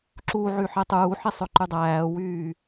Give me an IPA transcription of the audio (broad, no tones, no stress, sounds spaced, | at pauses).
ǁ u ʕ y ħ e tˤ uː ħ i sˤ ø ǃ y dˤ æː w yː